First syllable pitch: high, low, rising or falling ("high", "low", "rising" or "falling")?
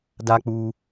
high